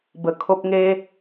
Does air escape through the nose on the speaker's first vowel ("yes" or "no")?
no